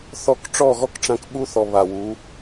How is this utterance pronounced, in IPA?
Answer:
θɔ˧k ʈ͡ʂɔ˦˨ɣɔ˦kʈ͡ʂã˧k ɓu˦θɔ˨ βa˨wu˨˦

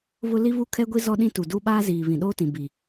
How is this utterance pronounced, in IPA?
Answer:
βʊ˦ li˦βu˦kʰɛ˦ɡʷi˦ zɔ˦ɗĩ˦tu˨ du˦ɓaː˦ziː˨ βĩ˨ɗoː˦tĩ˨ bi˨

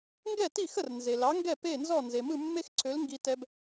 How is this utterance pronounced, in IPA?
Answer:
ŋɡɛ˥˩ti˥˩xə˥˩rnze˩ lɑ˩˥ŋɡɛ˥˩ pe˥˩nzɔ˥˩nze˩ mɯ˥˩mːe˥xǀʰø˩˥l ŋɡi˧tɛ˧b

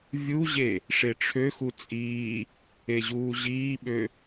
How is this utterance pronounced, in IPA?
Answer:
vʲuʑe | ʂeʈ͡ʂʰøxu t͡sʼiː | eʑuːʑiːɓø

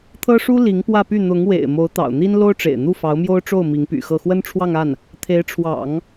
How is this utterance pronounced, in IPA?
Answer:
t̪ʰɤ˥ʂu˥ li˧˥ŋpwä˥˧py˥˩ n̪ʊ˧˥ŋwḛ˨˩ɪ̯ mo˧˥ʊ̯t̪ɑ̰˨˩ʊ̯ n̪i˥n lo˥ʊ̯ʈ͡ʂḛ˨˩ɪ̯n̪u˥˩ fɑ˧˥ʊ̯mjo˥ʊ̯ʈ͡ʂo˥˩ʊ̯ mi˧˥ŋpy̰˨˩xɤ˥˩ xwə˥nʈ͡ʂʰwɑ˥˧ŋa˥˩n | t̪ʰe˧˥ɪ̯ʈ͡ʂʰwɑ̰˨˩˦ŋ

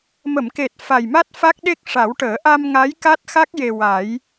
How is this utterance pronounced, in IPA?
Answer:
mə˨˩˨mke˨˩t̚ fa˨˩jma˦˥t̚ fa˦˥k̚ɗe˦˥k̚ʂa˨˩˦wʈəː˨˩˦ ʔa˧mŋa˧˥j ka˦˥t̚xa˦˥k̚je˨˩ wa˨˩˦j

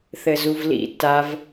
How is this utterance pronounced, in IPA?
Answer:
θɘzuvlḭ tav

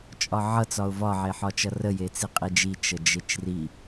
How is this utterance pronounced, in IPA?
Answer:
t͡ʃʼɒʕʌ t͡sɒʊ̯vɒ ʕeħɒt͡ʃʌrə jet͡siqʼid͡ʒi t͡ʃəd͡ʒet͡ʃri

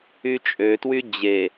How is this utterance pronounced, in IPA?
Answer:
yt͡ʃʼøtwy d͡ʑe

